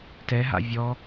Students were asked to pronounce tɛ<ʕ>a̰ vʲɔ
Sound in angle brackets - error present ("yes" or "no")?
yes